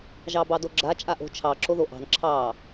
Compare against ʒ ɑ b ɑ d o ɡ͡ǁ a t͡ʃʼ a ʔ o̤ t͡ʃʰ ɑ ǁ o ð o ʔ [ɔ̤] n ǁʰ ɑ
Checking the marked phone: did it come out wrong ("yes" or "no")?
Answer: yes